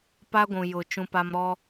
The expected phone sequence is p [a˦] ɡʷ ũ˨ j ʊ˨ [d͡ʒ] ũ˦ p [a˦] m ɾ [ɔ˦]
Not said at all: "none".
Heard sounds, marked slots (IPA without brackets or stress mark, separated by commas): a˦, t͡ʃ, a˦, ɔ˦